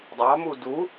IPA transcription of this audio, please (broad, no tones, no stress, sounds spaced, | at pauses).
dˤ ɑ m u d u